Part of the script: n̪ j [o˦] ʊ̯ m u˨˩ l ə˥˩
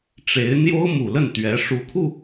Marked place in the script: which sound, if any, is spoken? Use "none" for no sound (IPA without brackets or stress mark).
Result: o˥